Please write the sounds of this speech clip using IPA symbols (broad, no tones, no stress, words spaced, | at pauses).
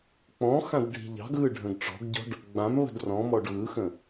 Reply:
k͡pɔ̃xãd ɖʱi̤ʎɑ̤ɡɣɯ ɖʱə̃ɡʈ͡ʂɔ̤ɡɟɔ̤ɖ | ɡ͡bãm βə̤drɔ̃mɔɖ ɣɯxə̃